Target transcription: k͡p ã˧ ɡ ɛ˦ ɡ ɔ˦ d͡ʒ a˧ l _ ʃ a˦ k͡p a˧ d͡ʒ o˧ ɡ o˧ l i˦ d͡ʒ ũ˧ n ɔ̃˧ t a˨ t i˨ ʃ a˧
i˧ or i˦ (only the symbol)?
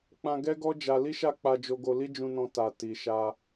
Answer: i˦